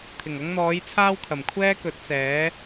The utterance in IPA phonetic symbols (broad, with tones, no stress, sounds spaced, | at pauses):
t̪ʰ ɪ˨˩ ŋ ɐ˧ ŋ n̪ ɔː˨˧ j t͡sʰ aː˥ w kʰ ɐ˨˩ m kʷʰ ɛː˥ k ɵ˨˥ t̚ s ɛː˨˥